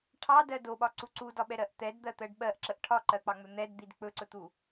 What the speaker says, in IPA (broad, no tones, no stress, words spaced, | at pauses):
ʈʰɑdɜ doɓɒǀu ǀudɒɓɛɾɜʔ t̪ɛdd̪ɜt̪ɜɖ ɓɜʔǁəʔ ʈʰɒǃɜk͡pɑŋ͡mɵ n̪ɛdd̪id k͡pɵǀɵt̪u